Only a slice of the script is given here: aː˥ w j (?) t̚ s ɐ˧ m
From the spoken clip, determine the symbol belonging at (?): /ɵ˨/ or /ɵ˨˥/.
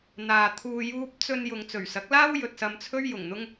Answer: ɵ˨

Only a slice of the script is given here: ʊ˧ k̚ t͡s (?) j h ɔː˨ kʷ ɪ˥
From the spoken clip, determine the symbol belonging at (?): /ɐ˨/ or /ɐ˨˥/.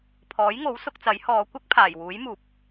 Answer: ɐ˨˥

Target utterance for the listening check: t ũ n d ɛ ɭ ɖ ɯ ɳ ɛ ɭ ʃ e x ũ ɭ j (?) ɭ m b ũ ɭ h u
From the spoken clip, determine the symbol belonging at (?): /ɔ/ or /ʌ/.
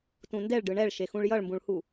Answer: ʌ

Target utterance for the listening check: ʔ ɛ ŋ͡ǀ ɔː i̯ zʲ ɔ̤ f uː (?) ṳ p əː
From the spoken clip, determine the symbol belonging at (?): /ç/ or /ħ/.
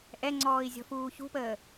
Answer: ç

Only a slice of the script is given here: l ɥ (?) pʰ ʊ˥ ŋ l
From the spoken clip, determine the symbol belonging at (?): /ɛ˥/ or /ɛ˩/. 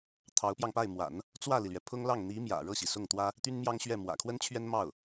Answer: ɛ˩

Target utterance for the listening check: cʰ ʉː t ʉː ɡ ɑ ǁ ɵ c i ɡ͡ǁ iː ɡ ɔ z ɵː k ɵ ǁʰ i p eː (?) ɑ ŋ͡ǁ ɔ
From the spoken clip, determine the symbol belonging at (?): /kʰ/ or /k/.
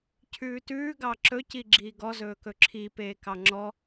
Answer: k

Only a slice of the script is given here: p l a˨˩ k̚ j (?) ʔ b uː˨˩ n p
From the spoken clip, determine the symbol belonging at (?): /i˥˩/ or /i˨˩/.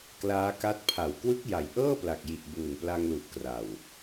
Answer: i˨˩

